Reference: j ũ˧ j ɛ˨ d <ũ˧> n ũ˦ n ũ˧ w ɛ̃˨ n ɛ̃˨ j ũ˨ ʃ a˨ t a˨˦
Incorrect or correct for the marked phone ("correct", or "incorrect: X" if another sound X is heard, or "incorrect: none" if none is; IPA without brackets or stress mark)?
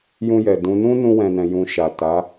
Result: incorrect: ũ˨˦